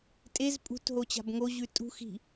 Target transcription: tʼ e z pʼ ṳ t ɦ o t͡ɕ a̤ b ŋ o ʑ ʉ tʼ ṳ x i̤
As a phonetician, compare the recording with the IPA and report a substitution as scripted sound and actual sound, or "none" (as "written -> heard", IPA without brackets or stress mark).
none